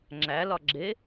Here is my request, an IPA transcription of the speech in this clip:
ŋ͡ǁ æ l ɒ ɡ͡ǁ e

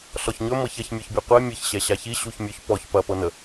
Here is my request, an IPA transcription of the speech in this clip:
ɬ ɔ ç ɲ ɵ m ɤ ç ɐ ç mʲ ɔ ç bʲ ɔ qʷ ɛ mʲ ə ç ɕ ɛ ɕ a ç i ɕ u ç mʲ ɵ ç p ɔ ç p ɐ p ɤ n ə

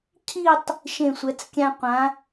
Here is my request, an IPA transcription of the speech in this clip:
cʰ i˥˧ tˤ | ʃ ẽ˧˩ sʷ ɛ˩˧ t͡s kʲ ã˧ qʷ ã˩˧

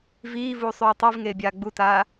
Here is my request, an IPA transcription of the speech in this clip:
v iː v uː sˤ ʉː tˤ i v ŋ eː bʲ aː ɡ͡b u t aː

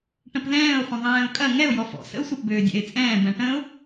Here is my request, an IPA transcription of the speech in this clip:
ʈ ə̃ p ð ɛ̃ː ʊ̯ χʷ ə̃ ðˤ ɛ̃ː ʊ̯ kʼ ɐ ŋ ɛ ʊ̯ j ɔ f ɔ̰ s ə̰ ʊ̯ sʷ ɐ p b øː dʲ ɛ̰ ɪ̯ t͡sʼ ɛ̃ː b ɛ̃ ʈ ə̃ ʊ̯

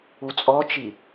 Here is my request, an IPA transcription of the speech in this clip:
u t͡sʼ ɔ t͡ʃ i

